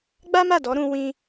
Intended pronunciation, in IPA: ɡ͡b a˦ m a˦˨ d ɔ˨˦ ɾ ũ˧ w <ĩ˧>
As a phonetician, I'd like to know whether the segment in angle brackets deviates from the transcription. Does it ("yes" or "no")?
yes